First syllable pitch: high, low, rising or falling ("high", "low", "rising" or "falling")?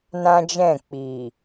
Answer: high